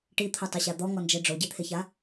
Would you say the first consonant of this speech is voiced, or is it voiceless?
voiceless